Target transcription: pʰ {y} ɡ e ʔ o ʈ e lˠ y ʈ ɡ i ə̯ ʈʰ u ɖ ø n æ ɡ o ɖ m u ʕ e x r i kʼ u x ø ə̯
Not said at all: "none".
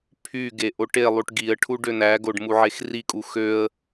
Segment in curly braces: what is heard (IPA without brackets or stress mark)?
y